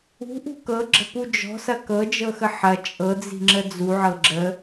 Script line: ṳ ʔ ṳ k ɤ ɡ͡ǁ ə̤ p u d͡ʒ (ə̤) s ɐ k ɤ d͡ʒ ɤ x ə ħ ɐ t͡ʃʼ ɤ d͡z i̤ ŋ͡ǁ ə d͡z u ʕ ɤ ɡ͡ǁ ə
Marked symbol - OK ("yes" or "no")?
no